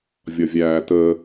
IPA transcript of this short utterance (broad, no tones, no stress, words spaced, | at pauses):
vʲʌvʲæːtə